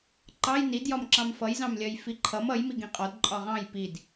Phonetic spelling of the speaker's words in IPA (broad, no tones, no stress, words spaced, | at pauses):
ǃɑj nidjɒm ǁɑ̃mfʌjzɑ̃mlʲɜj fiǃʰʌm ʌjmi ɡĩqʼɒd ǃʼɒʁɑ̃j pid